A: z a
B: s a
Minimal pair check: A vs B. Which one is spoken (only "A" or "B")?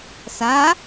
B